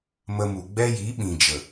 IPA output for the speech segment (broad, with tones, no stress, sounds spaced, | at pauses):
m ə˧ m u˨ ɡ͡b ɛ˦ j i˨˦ ɓ ĩ˨ d͡ʒ ə˨